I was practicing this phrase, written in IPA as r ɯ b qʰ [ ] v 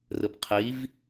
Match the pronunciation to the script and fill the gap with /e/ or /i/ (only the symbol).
i